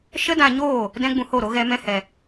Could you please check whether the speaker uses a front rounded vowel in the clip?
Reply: no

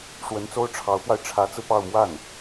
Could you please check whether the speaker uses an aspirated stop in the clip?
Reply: yes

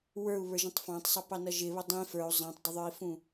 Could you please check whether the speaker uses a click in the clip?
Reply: no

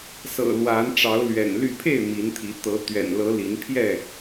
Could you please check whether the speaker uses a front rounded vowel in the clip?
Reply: yes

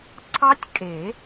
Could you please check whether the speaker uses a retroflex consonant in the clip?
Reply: no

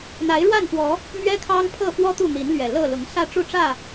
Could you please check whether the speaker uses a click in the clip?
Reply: no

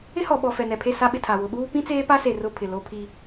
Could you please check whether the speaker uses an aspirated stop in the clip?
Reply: yes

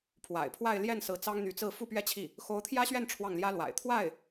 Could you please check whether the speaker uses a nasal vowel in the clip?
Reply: no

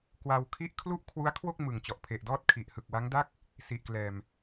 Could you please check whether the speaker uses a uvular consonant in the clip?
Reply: no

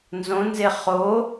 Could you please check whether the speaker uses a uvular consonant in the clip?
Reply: yes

